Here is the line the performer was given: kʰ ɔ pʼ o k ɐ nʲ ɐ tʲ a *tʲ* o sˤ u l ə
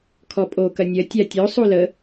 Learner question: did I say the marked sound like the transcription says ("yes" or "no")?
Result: yes